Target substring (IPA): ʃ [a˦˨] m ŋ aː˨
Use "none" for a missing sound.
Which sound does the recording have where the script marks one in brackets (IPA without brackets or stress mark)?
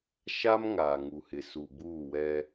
a˦